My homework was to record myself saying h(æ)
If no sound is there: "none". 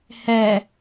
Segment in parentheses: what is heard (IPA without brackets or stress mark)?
ɛ